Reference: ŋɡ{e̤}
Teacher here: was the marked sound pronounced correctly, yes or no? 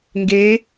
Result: no